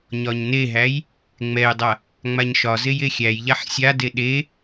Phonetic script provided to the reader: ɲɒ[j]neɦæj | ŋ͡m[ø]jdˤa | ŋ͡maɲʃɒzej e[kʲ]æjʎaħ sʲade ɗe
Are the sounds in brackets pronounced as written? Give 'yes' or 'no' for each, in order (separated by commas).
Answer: no, no, no